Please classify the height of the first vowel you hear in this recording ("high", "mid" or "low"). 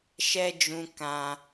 mid